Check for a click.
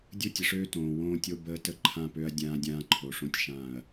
present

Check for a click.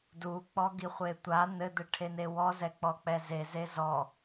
absent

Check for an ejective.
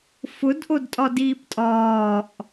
present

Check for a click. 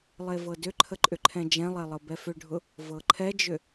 present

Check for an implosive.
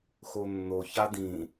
absent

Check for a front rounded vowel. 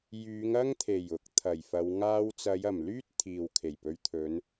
present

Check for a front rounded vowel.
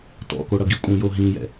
absent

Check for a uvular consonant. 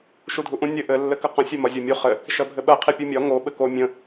present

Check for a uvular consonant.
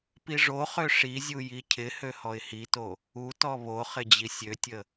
present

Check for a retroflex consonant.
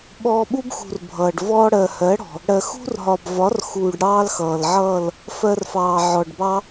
present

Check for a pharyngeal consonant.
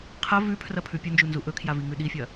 absent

